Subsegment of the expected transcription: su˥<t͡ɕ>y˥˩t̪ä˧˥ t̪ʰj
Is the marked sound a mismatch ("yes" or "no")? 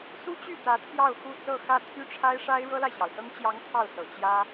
no